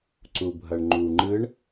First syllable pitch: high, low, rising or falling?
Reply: low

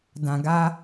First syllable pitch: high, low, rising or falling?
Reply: low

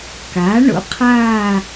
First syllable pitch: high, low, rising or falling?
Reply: rising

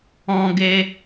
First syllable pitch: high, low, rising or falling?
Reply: high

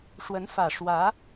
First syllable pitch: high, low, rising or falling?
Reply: rising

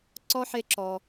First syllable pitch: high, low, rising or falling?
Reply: high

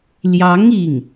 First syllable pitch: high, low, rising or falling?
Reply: rising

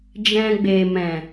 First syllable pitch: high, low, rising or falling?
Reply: low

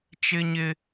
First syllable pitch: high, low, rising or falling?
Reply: high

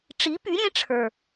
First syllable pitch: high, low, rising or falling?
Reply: rising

